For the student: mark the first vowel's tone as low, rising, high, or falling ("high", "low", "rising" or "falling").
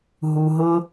low